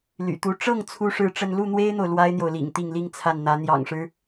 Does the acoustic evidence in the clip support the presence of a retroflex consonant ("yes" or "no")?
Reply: yes